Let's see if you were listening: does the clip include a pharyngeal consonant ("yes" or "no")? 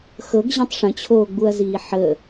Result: yes